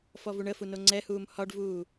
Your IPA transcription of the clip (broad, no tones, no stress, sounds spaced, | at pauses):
f ɔ v u ɳ ə f u n o ŋ͡ǀ ɛ h uː m h ɒ ɖ v uː